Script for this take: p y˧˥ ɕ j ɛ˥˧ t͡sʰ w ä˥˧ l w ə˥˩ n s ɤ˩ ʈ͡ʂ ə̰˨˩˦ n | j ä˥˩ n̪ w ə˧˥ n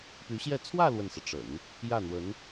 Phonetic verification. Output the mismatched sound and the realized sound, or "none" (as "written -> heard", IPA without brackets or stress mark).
none